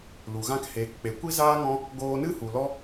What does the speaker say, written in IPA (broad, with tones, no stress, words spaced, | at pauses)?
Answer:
lu˨ɣã˦k heː˨kk͡pe˨ kʷi˦zaː˦ŋɔ̃˦ | ɡoː˧nɨ˦hu˨lɔ˦